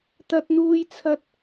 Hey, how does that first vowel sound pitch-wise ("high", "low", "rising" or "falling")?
high